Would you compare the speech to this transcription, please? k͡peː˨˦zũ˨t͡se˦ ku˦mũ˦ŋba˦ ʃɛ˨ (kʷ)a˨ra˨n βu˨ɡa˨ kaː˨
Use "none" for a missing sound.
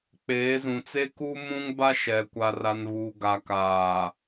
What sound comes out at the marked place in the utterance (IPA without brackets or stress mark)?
kʷ